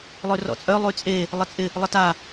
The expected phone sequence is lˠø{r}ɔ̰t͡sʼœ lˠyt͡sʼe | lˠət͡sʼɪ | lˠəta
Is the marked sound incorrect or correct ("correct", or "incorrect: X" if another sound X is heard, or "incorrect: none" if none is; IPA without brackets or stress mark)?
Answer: correct